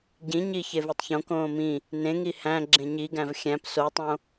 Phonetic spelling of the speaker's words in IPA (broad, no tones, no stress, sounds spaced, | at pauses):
ɟ ĩ ɲ i ç e v e tˤ ç õ k õː m ĩ | n ẽ ŋ i h æ̃ ɡ͡ǁ ẽ ɲ i ɡ æ̃ v xʲ æ̃ p s o tˤ õ